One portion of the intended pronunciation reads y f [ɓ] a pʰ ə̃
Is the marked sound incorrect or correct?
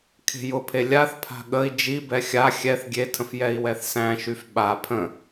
correct